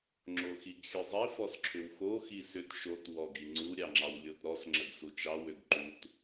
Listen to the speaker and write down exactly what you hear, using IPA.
ŋ͡ǁoxiɡxʲœzˤi fɔsǁʰʏwxo xisʏt ʃot wɔɡiŋ͡ǀu ɾʲɑŋ͡ǁɑwlʲotɾɔs ŋ͡ǁəɡsut͡ʃɑ wʏɡǃut

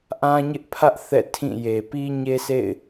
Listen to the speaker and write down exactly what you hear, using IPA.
ʔã˦ɲɪ˦ʔpʰä˦ʔ θɛ̰˦˨tʰĩ˦˨ je˨pi˦ɲe˦sḛ˦˨ɪ̯

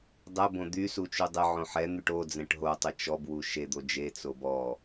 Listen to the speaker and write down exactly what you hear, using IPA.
dˤɛ bõd̪y sut͡ʃydˤɪ ʕõħɛ n̪yʈo d͡zɛ̃ʈɦo tˤɪt͡ʃɔb wuʃe d̪od͡ʒe t͡sobɔ

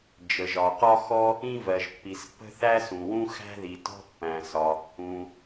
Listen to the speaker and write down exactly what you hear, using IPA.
d͡ʒə˩ʒɒ˩qɒ˥xɔ˥ | ĩ˥vɜ˩ʒpːi˩spːə̤˥ θæ˥sũ˩wũ˥ xæ̤˥ ði˩tɔ̤˥pːæ̃˩sɒ˩ | ũ˩

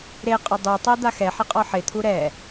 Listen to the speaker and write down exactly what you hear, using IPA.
ɾeqʼʊ dˤutˤɛ d̪axɛħɪ qʼɔħɪt̪ʰu ɾɛ

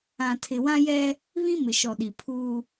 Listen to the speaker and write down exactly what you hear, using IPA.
ã˨tʰɪ˨wã˦jɛ˦ | βĩ˦mɪ˨ʃɔ˨ɗi˨ pʰuː˦

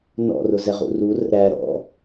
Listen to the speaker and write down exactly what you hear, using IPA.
nɔ̰rʊ zɛʁṵrurə̰ ɾæ ɾɔ̰

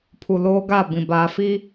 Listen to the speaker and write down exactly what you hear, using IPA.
pʰu˨loː˦ ɡa˦˨ bĩ˨baː˨fi˦

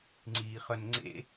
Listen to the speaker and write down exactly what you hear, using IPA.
ŋ͡ǀiːχœnŋ͡ǀḛ

